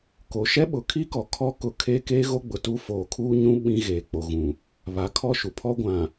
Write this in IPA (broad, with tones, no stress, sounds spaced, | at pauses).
k o˨ ʃ ɛ˦ ɓ ʊ˨ kʰ i˦ k ɔ˨ kʰ ɔ˦ k ʊ˨˦ kʰ eː˦ k eː˦ ɣ o˦ ɡ͡b ʊ˨ t uː˦ f oː˨ kʰ uː˦ ɲ ũ˦ ɓ ĩ˦ ɣ eː˨ k͡p o˨ ɣ ũ˨ | β a˨ kʰ ɔ˦˨ ʃ u˨ pʰ ɔ˦ ɡʷ ã˨